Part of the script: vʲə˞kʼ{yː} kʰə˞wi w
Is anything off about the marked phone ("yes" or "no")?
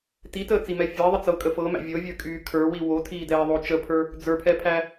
no